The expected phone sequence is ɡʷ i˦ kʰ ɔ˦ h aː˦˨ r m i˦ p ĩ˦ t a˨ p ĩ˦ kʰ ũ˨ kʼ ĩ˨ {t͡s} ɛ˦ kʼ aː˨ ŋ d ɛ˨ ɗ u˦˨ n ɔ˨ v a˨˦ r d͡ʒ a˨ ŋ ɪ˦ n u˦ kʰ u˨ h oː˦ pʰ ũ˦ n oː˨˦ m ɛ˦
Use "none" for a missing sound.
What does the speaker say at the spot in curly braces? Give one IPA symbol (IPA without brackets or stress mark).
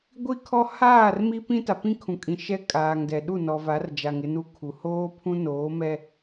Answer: ʃ